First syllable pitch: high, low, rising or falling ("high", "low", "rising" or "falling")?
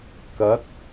rising